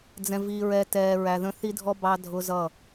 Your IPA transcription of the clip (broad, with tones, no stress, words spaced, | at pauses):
d͡zɛ̃˨vi˨ɹɛ˨ tɛː˨ ɹæ˨ðə̃˦ θi˦dʱɔ˦ bɑ˦dʱʊ˦zʌ˦˨